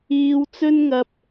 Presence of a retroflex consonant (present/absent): absent